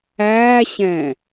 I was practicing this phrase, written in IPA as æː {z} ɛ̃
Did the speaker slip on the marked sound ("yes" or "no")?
yes